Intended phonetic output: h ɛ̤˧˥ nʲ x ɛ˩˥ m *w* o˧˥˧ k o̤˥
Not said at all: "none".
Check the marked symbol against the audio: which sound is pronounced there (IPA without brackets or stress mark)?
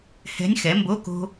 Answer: b